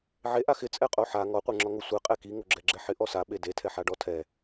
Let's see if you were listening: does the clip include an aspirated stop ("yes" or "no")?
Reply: yes